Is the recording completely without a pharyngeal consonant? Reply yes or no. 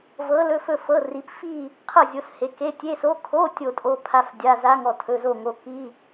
yes